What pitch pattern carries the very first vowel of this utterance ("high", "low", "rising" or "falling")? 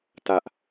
high